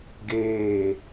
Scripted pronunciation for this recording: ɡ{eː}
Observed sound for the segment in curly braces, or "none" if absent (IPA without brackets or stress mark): eː